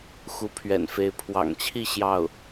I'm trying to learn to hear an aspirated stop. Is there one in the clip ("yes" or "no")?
yes